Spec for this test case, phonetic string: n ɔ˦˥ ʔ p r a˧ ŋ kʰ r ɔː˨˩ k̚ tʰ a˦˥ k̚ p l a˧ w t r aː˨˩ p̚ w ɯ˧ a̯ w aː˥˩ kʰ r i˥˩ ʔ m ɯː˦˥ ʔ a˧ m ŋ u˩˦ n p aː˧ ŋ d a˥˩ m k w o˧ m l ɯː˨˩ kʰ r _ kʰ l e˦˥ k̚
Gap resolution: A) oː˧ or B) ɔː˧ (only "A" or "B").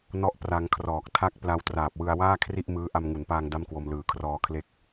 B